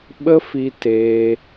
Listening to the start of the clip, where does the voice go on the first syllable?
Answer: high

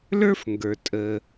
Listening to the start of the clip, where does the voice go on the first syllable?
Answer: high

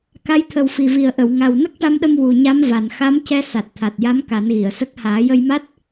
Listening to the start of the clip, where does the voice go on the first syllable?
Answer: rising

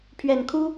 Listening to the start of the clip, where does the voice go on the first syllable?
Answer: low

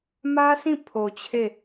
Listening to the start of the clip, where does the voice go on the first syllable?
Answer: high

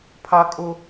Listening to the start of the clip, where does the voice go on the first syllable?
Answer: high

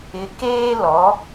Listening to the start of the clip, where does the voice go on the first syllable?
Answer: rising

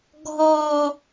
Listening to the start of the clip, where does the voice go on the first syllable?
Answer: low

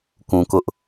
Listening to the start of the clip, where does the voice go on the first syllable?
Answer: low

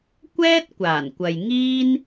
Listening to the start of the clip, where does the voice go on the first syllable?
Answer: high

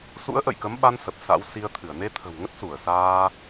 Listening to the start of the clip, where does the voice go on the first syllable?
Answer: rising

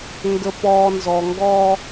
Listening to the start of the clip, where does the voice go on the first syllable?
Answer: low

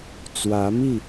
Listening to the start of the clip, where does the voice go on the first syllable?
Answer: rising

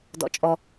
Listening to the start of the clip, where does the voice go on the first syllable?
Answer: high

